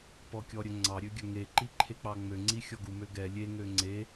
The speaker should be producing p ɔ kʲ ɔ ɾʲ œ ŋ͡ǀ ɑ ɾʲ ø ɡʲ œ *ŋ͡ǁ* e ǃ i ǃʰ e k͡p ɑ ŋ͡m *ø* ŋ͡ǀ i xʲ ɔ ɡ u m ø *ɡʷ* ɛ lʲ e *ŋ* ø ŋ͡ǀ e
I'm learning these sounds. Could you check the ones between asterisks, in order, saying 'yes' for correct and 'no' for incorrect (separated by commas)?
no, yes, no, yes